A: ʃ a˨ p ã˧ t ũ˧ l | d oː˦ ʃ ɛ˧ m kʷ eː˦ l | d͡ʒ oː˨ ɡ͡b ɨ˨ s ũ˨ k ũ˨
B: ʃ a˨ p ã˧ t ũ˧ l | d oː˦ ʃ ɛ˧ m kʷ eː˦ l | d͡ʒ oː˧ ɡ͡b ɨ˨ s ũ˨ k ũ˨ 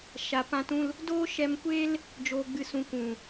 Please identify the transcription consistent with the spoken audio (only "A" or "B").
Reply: A